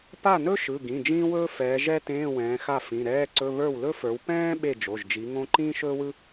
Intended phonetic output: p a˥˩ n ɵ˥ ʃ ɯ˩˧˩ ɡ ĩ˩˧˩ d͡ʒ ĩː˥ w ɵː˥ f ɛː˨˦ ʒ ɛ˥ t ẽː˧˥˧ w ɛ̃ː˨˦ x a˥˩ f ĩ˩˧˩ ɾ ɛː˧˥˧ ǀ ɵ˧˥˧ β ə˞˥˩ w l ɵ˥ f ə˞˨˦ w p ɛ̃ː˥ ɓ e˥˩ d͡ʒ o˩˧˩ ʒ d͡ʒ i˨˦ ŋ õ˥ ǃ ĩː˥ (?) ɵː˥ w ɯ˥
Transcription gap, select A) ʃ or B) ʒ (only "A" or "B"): A